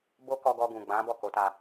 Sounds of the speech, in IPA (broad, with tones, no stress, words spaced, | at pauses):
bo˦kɔ˧ɡɔ˧ ɡũ˨ɡ͡bã˨˦ bɔ˦˨ko˨˦ta˧